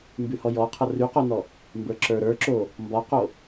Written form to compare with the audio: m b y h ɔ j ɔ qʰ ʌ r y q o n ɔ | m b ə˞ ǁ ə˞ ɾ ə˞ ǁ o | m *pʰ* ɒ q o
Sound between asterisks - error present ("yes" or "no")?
yes